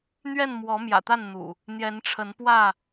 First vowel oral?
yes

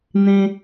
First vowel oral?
no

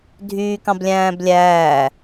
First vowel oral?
yes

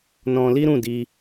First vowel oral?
no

